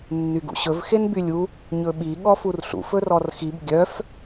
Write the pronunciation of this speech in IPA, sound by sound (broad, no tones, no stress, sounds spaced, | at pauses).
nː y ɡ ṵ ɕ ɵ v x e n b y lʲ u | ɲ ɵ ɓ i ɠ ɔ f u r ɬ ṵ f ɵ r ɔ r x i b ɡʲ œ f